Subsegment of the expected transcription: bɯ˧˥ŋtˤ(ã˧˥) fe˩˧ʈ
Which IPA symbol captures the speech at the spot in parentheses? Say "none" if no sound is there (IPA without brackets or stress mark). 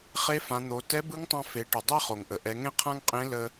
ã˧